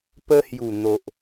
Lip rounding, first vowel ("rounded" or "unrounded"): unrounded